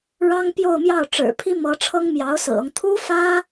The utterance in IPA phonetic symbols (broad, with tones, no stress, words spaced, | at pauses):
ɻɑ˥ŋpjo˥˧ʊ̯mjɑ˥˩ʊ̯ ʈ͡ʂɻ̩˨˩pʰi˥mɤ˧˥ ʈ͡ʂʰɤ˥ŋmjɑ˧˥ʊ̯sɹ̩˨˩ɤ˦ŋ t̪ʰu˥fä˥